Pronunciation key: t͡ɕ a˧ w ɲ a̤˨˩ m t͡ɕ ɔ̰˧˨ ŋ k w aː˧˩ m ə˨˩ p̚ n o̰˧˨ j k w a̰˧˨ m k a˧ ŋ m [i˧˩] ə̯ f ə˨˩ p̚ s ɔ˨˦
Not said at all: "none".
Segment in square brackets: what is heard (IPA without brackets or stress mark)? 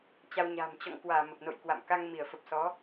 i˧˩